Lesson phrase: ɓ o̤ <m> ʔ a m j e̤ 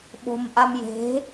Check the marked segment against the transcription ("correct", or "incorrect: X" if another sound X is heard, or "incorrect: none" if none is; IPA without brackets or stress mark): correct